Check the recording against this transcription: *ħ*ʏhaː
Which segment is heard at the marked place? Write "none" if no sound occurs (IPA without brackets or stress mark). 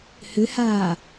h